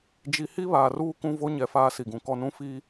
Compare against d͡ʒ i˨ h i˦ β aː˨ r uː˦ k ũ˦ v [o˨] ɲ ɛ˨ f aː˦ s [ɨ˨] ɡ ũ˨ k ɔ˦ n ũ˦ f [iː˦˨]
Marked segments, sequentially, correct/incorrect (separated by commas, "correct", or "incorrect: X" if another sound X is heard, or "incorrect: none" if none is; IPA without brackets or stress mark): incorrect: o˦, incorrect: i˨, incorrect: iː˦